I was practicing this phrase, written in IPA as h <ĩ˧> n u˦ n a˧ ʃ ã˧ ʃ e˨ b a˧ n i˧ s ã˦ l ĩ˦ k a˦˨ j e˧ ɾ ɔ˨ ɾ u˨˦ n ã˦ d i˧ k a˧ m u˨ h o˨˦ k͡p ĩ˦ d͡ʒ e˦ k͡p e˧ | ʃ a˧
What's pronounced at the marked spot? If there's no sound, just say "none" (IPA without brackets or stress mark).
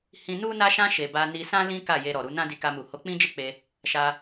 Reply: ĩ˧